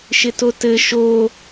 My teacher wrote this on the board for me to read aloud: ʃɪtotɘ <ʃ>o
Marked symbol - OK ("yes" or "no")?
yes